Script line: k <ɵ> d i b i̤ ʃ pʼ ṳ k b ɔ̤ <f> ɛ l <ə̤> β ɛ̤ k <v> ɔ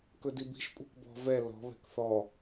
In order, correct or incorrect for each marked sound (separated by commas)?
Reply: correct, incorrect, incorrect, incorrect